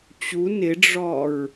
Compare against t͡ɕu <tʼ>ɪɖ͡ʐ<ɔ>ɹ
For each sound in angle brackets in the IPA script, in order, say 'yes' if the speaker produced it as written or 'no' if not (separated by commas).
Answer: no, yes